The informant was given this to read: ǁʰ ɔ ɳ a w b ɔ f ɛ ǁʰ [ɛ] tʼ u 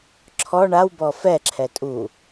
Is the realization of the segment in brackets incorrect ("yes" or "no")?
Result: no